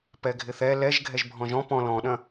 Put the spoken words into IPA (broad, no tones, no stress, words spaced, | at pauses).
pɛɡʱɪθɛ lɛʒ ɡʱɛʒbʱɔ̃ʒɔ̃ pɔ̃ lɔ̃ɗɐ̃